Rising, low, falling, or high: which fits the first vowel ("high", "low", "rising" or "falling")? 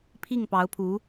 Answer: falling